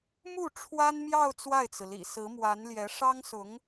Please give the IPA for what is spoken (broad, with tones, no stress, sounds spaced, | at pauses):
m u˥˩ ʈ͡ʂʰ w a˥ n m j ɑ˥˧ ʊ̯ t͡s w a˥˩ ɪ̯ t͡s ɹ̩˩ l ḭ˨˩ s ɹ̩˧˥ m w a˧˥ n l j ɛ˧˥ ʂ ɑ˥ ŋ s ʊ˧˥ ŋ